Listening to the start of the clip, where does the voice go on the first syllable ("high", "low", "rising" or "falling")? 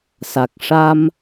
low